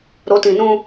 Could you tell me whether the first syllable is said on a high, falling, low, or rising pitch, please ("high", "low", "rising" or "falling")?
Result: rising